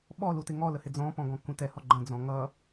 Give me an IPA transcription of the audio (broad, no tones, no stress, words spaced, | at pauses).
ɓɔlutɪ ŋɔləhɪ d͡zɔ̃pɔ̃ɡɔ̃kũ tɛhɔ ɡ͡ǃə̃d͡zɔ̃ ŋʌ